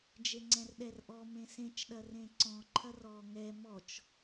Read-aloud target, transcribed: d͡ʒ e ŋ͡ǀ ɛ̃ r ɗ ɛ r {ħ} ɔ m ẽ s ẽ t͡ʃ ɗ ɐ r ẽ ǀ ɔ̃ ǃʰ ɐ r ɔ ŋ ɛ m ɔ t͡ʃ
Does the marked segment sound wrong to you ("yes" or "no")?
yes